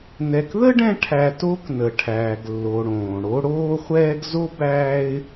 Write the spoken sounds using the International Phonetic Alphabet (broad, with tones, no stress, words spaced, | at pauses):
nɛ˨kðə˥ ɖɛ̃˦ʈʰæ˨ to˦k nə˩ʈʰæː˩ɡlːo˩ ɽõː˩ɽo˦ ɽoː˦χʷɛː˦ɡzo˥ bæː˦ɪ̯